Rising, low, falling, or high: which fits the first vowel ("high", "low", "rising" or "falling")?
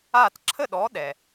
falling